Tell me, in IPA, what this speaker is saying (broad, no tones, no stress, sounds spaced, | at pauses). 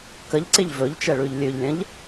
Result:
k ə ʎ ǀ ɪ ʎ v ɵ ʎ t͡ʃ ɛ ɭ ʉ ʎ lʲ ʉ ʎ lʲ ə̃ ʎ